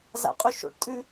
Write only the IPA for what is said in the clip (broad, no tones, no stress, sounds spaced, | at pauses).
z a̰ qʼ ʉ ʃ o̰ ʈ tʼ ʉ